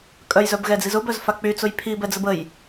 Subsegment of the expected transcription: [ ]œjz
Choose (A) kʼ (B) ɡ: A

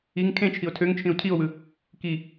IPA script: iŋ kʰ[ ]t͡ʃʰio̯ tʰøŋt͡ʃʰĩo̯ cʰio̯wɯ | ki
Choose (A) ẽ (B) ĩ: A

